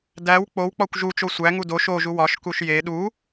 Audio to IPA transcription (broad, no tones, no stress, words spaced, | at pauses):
dæw k͡powk͡pɒkʷ ʒut͡ʃo sʷæŋu do ʃoʒu wɒʃkuʃ je ɗu